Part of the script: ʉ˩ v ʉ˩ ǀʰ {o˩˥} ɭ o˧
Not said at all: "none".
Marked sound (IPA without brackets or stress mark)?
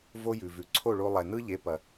o˥˩